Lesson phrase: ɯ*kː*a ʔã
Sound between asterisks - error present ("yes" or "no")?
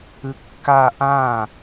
no